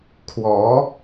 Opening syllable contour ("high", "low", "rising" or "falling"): rising